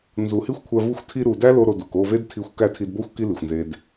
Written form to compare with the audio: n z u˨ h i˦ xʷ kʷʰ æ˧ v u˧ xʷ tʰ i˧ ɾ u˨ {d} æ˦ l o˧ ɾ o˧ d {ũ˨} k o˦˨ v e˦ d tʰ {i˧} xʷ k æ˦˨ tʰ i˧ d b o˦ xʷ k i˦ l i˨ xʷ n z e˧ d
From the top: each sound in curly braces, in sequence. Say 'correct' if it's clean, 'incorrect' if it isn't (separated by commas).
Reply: correct, incorrect, correct